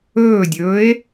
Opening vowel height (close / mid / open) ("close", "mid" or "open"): mid